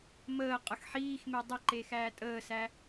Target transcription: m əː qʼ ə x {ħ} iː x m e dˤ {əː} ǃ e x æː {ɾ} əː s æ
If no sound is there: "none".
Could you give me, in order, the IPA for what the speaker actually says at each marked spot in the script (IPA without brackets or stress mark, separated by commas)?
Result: ħ, ə, tʼ